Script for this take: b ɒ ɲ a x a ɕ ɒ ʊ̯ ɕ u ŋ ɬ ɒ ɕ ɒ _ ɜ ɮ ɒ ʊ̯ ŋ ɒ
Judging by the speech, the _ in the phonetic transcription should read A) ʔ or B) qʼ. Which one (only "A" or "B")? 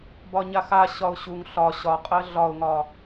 B